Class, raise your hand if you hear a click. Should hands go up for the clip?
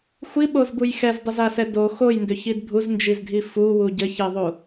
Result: no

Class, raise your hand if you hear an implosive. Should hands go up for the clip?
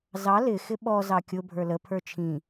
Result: yes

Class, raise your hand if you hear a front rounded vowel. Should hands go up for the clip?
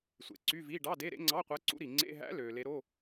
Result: yes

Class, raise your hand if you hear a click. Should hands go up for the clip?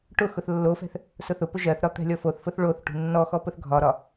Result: no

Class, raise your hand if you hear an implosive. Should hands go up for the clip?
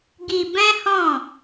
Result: no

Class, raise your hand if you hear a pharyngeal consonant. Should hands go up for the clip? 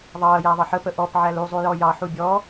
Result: yes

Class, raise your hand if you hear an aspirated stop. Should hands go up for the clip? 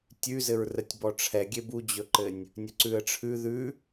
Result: yes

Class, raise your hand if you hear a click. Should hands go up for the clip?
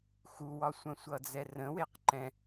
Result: yes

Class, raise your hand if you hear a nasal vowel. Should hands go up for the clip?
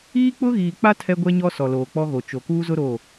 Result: no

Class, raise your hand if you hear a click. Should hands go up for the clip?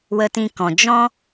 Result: no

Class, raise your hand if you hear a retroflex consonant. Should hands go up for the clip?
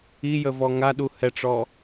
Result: yes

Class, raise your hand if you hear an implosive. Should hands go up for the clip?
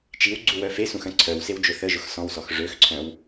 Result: no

